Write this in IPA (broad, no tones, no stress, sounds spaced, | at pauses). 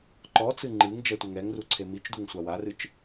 ǃ ɔ t͡s ɨ ŋ͡ǃ ɨ ŋ d͡ʒ ɛ tʷ ɘ ŋ ɛ ŋ r u ǀʰ e m i t͡ʃ d u ŋ sʷ a w a r ɨ t͡ʃ